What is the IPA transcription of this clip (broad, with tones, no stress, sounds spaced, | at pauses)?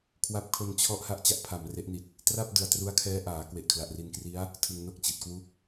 kʰ w a˦˥ p̚ kʰ o˧ n t͡ɕʰ ɔ˦˥ ʔ h a˦˥ ʔ t͡ɕ a˦˥ ʔ pʰ a˨˩ m r e˦˥ ʔ n i˨˩ t̚ | t r a˥˩ p̚ d ɯ˨˩ a̯ t r u˦˥ a̯ kʰ ɛː˦˥ ʔ aː˩˦ k w e˨˩ ʔ kʰ l a˨˩ ʔ r i˧ n k r i˦˥ a̯ | tʰ ɯ˧ ŋ n o˥˩ k̚ t͡ɕ i˨˩ t̚ k w u˥˩ k̚